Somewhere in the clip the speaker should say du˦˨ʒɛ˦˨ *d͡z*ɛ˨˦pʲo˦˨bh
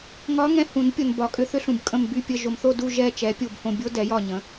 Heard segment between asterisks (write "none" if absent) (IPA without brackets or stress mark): t͡ʃ